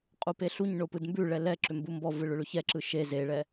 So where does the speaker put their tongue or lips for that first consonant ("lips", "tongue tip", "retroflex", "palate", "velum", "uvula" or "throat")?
uvula